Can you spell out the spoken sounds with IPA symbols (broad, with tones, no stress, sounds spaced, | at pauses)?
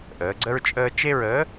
ʔ əː˩˧ ɡ͡ǀ ə˦ ɹ t͡ʃʼ əː˦ t͡ʃ e˦ ɹ əː˨˥